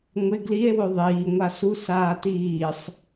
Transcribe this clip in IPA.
ŋʷ ɪ ɡ l i e̯ w ʊ ðˤ iː ŋʷ a s u s aː t iː sˤ

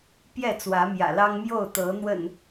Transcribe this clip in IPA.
p j ɛ˥˨ t͡s w ä˨˦ m j ä̰˨˩ l ɑ˦ ŋ m j o˥˨ ʊ̯ t̪ ɤ˨˦ n̪ w ə̰˨˩ n

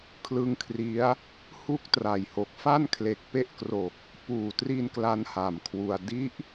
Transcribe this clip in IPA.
kʰ l ɯ˦˥ ŋ kʰ r i˦˥ a̯ | h u˥˩ k̚ t r a˨˩ j h o˨˩ k̚ f a˥˩ n kʰ l e˨˩ k̚ p e˦˥ ʔ k r o˨˩ k̚ | p uː˨˩ t r i˧ n k l a˦˥ n h a˨˩ m kʰ w u˧ a̯ d i˦˥ ʔ

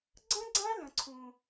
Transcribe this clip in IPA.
ɡ͡ǀ ə̃˥ ɡ͡ǀ ã˥ l ə̃˧ ǀʰ ũ˧

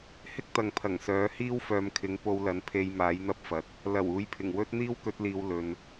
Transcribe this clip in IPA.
h ɪ˥ k̚ t̪ ɐ˨ ŋ pʰ ɐ˨˩ ŋ s œː˨˥ h iː˥ w f œː˨˧ m kʰ ɪ˨˥ ŋ p o˧ w l ɐ˨˥ n pʰ e˧ j m aː˨˥ j n̪ ɐ˥ p̚ f ɐ˨ t̚ | l ɐ˨˩ w uː˨˧ j pʰ ɪ˨˩ ŋ w ɵ˥ t̚ n̪ iː˥ w k ɵ˨˥ t̚ l iː˨ w l ɵ˨ n

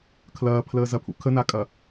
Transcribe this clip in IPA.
kʰ l ɐː pʰ l əː z ɐ pʰ ṵ kʰ ə n a kʼ ɐ

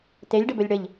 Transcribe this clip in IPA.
t e lʲ ɖ ə b ɵ lʲ ɽ ə ʎ

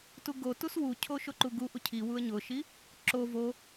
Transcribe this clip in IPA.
t u ɡ o t u s w u cʰ o ʃ o ǃ u ɡ u ʔ u cʰ i w u ə̯ ɲ ʊ ʃ i | ǁ o v o

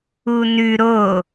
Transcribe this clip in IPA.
u n ʉ ɾ o

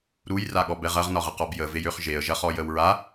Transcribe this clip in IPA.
ɾ u j r a ɠ ɔ b ɛ ʁ ɐ ʁ n ɒ ʁ ə q ɔ b j ə v e j ø χ ʒ e ə̯ ʒ ɐ χ ɔ j ə w ɹ a

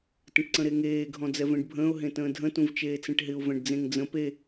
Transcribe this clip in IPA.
t ə̃ ʈ ǀ ə̃ ɾ e ŋ eː ɡʱ ɔ̃ d͡z ɛ v ẽ ɖ bʱ ə̃ː ʊ̯ ɦ ẽ t ə̃ː dʱ ə̃ t ũ v t͡ʃ eː t͡s ẽ ʈ ɦ ɪ ʊ̯ v ɛ̃ ɖ d͡z ẽ ŋ d͡z ə̃ p e

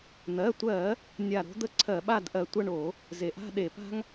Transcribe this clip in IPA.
n̪ ɜ˩˧˩ tʷ ɜ˧˩˧ | nʲ a˧˩ ɾ o̤˥ d̪ ə˥ ǀʰ ɜ˧˩˧ ɓ a˥˧ d ʔ ɜ˧˩ tʷ ɐ˥˧ ɳ o˧˩˧ | z e˩ ʔ a̤˥˧ ɗ e˧˩˧ p a̤˥ ŋ

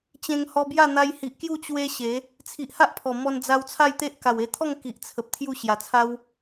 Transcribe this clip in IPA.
t͡ɕ ẽ˧ ŋ h ɔ˧ b j a˥˧ n̪ a˧ j h i˨ ʔ k j u˥˧ t͡ɕ w e˦ ɕ e˨˦ | t͡sʰ i˨ ʔ h a˦ ʔ pʰ ɔ˨˩ m ɔ˧ n d͡z a˧ w t͡sʰ a˥˧ j t̪ e˦ ʔ k a˨˩ w e˧ t̪ʰ ɔ˥˧ ŋ k i˨ ʔ t͡sʰ ə˨ p̚ t̪ʰ j u˥˧ ɕ j a˨˩ t͡sʰ a˦ w

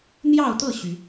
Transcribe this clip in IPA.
n̪ j ɑ˥˨ ʊ̯ t̪ ɤ˥˨ ɕ y˨˦

